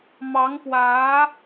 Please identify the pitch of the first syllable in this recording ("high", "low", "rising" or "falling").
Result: rising